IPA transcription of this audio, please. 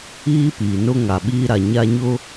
iː˦ piː˨nʊ˦ŋa˨ɓiː˦ ɾa˨ ɲa˦ɲʊ˦

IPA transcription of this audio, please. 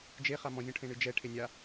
d͡ʒeχa mɔ̃zʲɔ̃ ʈʰẽɳɨd͡ʒɛʈʰe nʲa

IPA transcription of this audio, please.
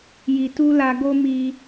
ji˨tu˧ la˧ ɡo˦mi˧

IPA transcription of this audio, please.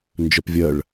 nd͡ʒœpvʲɜɭ

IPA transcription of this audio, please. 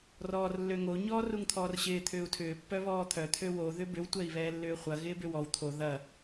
rɔːrlːøŋo ɲɔːruŋt̪ʰɔːrɕɪː t̪ʰʏːu̯tʰʏː pːœβɔːt̪ʰœ t̪ʰøwo ðʏbʏw tʷɛi̯βɛːlːʏːχʷɐ ɣɪːbʏwɔw t̪ʰo ðɐ

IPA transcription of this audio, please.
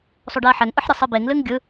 sˤoɖɛɐ̯ħɛŋʔɯħ ɾʲʌsˤɨbeŋlɨŋ ɡʲɯ

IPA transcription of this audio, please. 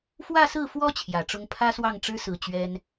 fwä˥˧sɹ̩˥˩fwɔ˥ t͡ɕʰjä˨˩ʈ͡ʂʊ˥ŋ pʰä˥swɑ˥˩ŋʈ͡ʂɻ̩˥sɹ̩˨˩ t͡ɕɥɛ˥n

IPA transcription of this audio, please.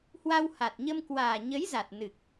hwa˧wha˨˩t̚ɲə˧m kwaː˨˩ɲə˨˦jza˨˩t̚ nɨ˨˩k̚

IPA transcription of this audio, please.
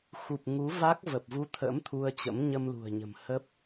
xu˨˩p̚ŋu˨˦va˦˥k̚ və˨˩p̚vu˧t̪ʰə̰˧˥m t̪ʰu˧ə̯t͡ɕə̰˧˥m ɲə˧mlṳ˨˩ə̯ɲə̤˨˩mhə˦˥p̚

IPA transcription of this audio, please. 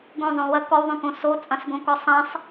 ɡõzˤõ wɐ kɔwðˤõkõ sot͡sʼɐ̃sɡõkɔ sˤɐ̃sˤ

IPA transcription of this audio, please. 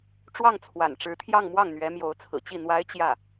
ʈ͡ʂwɑ˥˩ŋt͡sʰwa̰˨˩nʈ͡ʂɻ̩˧˥t̪ʰjɑ˥˧ŋ mwɑ˥˩ŋn̪ɥɛ˧˥mjo˧˥ʊ̯t͡sʰɹ̩˨˩ t͡ɕi˥˩n̪wa˥ɪ̯ t͡ɕjä˥˩

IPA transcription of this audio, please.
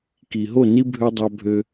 ki˨ɦo˦˨ ni˧ bʱø˧dˤɑ˧bʱø˧

